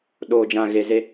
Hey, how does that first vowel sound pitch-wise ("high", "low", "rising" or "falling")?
low